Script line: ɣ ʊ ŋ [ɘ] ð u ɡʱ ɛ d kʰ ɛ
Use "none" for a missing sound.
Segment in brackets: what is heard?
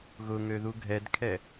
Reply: ø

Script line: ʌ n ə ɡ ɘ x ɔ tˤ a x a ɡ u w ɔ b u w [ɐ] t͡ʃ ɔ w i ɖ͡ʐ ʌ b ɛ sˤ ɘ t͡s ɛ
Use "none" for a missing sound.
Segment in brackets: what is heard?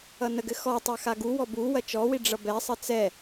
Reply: ɐ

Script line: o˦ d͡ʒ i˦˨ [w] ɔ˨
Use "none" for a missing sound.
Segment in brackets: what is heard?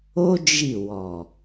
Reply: w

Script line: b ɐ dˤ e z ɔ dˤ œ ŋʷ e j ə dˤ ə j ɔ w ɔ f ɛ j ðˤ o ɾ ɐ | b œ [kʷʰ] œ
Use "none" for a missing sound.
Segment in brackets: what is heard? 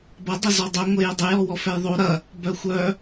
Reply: xʷ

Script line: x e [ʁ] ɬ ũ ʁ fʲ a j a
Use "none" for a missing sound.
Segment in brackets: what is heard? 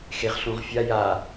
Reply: ʁ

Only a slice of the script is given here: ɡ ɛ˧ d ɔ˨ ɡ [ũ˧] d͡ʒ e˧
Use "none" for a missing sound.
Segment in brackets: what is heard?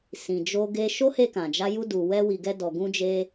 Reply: ũ˧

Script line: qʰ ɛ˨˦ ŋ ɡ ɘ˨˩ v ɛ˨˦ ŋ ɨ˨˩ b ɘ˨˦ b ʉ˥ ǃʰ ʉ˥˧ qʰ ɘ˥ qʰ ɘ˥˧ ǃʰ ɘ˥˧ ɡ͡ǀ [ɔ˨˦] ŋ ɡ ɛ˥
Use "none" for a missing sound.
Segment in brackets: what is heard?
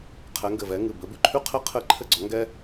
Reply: ɔ˨˦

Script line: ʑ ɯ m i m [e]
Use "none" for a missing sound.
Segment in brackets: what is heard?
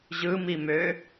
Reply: ø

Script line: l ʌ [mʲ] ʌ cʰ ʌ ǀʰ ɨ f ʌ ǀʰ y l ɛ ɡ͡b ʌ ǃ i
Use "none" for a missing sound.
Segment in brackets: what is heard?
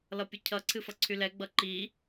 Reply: pʲ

